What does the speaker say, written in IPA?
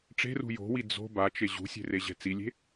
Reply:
ʈ͡ʂ e̤ r ṳ j o̤ w i d͡z o̤ b a t͡ʃ e ʑ ṳ sʲ e̤ r e ʑ ɛ̤ t͡s i lʲ e̤

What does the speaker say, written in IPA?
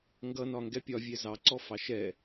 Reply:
ŋ ɡ ʌ n ɒ ŋ ɡ ɛ pʲ ɒ vʲ ɛ z ɑ ǀ ɔ f ɑ ʃ ɛ

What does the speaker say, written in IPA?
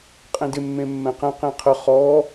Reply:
qʼ ẽ d ɪ mː ẽ mː ɛ̃ q ɛ̃ q ẽ qʰ ə χ ɔ

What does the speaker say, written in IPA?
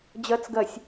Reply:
d͡ʑ ɜ t͡s ɡ ɜ sʲ

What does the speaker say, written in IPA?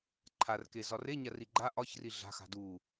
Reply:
ǃʰ a r k e z ɒ r e ɲ a r i ɡ͡ǃ a ʔ ɒ ç r i ɮ a̤ x a̤ d u

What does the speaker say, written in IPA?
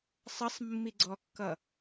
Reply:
sˤ ʌ sˤ mː i ɡ͡ǀ ɔ kː ʌ

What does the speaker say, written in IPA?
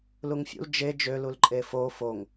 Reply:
l u ŋ fʲ ṵ l d͡ʒ e d͡ʒ ø l u l ǃʼ e f o f o ŋ

